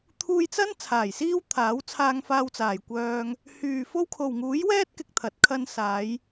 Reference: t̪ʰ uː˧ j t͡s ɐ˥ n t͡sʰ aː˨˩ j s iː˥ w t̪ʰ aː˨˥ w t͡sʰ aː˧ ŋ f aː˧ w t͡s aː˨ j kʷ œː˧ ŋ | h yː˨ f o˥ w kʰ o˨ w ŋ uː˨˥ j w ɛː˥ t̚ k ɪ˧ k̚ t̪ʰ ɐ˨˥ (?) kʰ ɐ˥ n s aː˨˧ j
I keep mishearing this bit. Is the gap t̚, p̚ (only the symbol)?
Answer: t̚